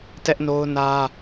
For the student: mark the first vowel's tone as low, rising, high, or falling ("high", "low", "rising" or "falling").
high